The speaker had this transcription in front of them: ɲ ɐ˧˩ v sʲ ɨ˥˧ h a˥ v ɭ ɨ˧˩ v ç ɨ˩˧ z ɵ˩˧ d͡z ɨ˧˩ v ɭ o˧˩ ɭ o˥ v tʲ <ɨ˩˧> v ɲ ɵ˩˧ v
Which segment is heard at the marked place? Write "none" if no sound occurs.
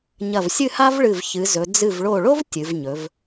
ɨ˩˧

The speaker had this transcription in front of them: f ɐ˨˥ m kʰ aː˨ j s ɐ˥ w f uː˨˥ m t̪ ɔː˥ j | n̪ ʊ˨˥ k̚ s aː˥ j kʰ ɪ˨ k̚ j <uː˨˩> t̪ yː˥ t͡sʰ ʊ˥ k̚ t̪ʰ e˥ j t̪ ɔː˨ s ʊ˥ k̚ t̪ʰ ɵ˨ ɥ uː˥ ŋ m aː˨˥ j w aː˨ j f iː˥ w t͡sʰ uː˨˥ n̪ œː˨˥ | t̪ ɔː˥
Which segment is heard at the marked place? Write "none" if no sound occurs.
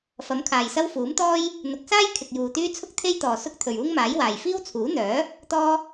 uː˨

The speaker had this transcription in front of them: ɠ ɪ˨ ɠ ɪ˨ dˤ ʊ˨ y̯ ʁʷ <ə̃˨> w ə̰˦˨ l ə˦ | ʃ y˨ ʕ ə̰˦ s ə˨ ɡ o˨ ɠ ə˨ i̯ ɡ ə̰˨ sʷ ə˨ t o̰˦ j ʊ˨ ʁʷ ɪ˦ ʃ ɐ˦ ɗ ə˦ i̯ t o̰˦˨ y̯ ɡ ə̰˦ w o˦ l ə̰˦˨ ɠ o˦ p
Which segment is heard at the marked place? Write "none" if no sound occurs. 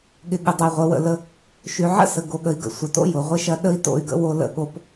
ə˨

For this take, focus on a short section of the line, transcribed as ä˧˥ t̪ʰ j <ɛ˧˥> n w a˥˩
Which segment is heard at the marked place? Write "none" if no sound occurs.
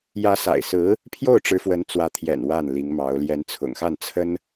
ɛ̰˨˩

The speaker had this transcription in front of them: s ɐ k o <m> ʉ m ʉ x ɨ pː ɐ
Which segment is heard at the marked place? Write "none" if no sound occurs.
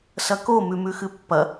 m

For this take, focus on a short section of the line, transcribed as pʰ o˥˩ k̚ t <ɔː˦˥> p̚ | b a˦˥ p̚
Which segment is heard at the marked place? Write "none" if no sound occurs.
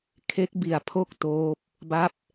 oː˦˥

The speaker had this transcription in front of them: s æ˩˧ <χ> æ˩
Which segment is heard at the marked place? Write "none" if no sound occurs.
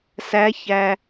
ç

